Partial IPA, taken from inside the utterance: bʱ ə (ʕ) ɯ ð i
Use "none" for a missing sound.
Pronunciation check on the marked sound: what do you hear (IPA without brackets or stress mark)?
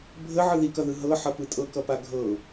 ʕ